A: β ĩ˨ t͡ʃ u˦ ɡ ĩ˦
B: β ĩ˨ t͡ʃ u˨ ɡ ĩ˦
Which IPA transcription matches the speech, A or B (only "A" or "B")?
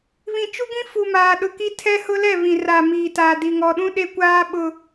A